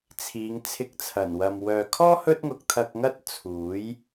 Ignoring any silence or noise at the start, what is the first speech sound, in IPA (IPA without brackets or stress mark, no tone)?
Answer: t͡sʰ